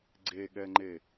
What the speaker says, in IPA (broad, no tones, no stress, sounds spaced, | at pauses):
ɡ͡ǀ e ɠ ɛ ŋ͡ǃ e